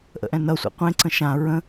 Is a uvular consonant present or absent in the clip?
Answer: present